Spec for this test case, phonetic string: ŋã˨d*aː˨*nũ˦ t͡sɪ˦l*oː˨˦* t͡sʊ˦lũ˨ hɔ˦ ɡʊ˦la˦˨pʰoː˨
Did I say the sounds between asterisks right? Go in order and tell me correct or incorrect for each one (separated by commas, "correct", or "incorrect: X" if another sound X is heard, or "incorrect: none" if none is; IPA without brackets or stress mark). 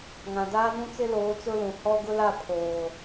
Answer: incorrect: aː˦, correct